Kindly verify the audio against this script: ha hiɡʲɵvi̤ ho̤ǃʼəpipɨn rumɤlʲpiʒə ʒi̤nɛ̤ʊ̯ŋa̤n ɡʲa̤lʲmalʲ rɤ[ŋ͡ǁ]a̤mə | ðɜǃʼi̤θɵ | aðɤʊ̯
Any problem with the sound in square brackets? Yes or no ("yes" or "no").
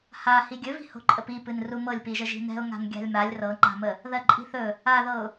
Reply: yes